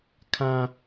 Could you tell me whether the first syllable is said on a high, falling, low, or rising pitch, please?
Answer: high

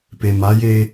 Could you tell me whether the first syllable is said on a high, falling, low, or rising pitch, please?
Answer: low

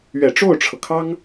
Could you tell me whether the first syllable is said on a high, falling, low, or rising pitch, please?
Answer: low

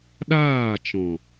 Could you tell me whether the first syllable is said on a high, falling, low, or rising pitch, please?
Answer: falling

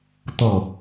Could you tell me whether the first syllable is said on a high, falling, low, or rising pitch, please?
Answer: low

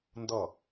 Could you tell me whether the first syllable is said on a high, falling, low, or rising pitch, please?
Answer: falling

